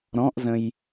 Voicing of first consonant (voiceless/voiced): voiced